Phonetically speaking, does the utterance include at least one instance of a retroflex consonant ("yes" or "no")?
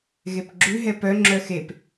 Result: no